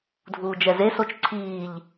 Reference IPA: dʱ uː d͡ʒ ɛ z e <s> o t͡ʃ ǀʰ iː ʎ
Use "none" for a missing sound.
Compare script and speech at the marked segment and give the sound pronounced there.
s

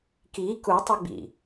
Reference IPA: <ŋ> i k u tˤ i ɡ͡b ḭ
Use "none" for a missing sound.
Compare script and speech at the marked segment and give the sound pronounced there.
k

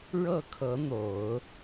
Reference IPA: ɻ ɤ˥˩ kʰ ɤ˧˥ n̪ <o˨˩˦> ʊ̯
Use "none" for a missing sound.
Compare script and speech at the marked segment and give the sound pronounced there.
o˨˩˦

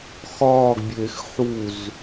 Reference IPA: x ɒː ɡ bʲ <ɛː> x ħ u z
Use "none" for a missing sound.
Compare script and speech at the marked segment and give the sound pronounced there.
eː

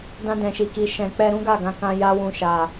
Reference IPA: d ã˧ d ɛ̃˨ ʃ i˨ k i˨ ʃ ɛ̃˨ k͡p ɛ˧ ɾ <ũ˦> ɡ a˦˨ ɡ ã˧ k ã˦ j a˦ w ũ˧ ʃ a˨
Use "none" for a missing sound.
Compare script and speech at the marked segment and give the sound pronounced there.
ũ˦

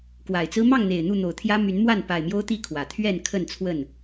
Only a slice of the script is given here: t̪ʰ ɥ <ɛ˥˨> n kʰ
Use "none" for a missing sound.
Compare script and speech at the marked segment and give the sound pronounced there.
ɛ˥˨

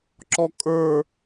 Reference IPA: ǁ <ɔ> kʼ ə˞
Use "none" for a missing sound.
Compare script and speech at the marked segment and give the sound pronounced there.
ɔ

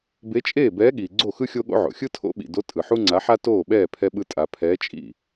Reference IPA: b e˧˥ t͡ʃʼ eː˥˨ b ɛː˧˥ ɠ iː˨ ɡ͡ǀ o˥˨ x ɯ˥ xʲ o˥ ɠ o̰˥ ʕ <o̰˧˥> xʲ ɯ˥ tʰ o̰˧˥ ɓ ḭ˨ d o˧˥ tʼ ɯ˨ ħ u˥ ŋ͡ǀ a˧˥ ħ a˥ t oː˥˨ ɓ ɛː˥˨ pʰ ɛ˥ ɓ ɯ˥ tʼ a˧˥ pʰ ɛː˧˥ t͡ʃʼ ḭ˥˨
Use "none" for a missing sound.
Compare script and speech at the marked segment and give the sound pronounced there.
o̰˨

